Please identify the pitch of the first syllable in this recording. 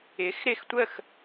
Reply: rising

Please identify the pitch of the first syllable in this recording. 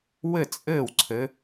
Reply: falling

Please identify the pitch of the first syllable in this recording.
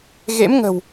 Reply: rising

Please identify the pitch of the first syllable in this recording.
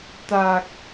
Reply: low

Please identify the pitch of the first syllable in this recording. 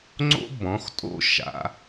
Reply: high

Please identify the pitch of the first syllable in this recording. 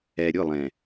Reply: low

